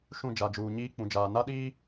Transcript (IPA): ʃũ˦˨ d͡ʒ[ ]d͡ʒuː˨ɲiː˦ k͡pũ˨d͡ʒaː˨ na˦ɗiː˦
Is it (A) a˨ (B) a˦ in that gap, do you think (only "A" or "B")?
A